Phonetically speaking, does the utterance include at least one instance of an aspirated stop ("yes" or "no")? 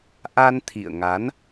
yes